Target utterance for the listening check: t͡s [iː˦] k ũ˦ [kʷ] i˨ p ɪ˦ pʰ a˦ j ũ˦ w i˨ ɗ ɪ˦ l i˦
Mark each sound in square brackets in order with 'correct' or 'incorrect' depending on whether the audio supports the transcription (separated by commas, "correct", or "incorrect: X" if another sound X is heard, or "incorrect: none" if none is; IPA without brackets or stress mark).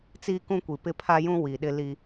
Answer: correct, correct